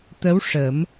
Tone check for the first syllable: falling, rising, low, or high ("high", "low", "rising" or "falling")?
rising